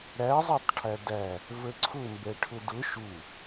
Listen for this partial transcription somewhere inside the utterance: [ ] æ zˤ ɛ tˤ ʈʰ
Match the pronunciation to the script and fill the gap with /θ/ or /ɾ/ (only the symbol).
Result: ɾ